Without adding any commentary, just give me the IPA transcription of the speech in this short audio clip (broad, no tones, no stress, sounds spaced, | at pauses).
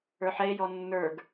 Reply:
ə˞ ħ ɛ e̯ j ɔ nː ə˞ ɡ